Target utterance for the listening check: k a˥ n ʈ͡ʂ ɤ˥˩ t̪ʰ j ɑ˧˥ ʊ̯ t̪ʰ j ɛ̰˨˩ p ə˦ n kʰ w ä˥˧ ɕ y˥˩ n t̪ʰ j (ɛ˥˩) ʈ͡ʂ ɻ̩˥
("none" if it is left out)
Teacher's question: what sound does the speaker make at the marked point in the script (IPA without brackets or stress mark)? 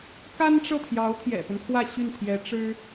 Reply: ɛ˧˥